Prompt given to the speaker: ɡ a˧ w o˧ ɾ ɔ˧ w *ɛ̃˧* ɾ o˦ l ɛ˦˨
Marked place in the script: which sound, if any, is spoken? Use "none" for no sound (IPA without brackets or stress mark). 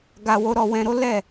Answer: ɛ̃˧